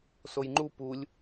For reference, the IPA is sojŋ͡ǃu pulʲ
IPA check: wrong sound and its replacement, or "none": none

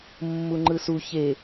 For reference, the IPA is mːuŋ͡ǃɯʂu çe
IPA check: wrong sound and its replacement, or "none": ʂ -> s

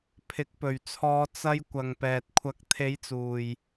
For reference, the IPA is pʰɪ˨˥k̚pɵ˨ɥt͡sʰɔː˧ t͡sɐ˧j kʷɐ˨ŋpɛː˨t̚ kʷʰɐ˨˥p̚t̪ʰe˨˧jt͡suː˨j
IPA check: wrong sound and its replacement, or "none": p̚ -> k̚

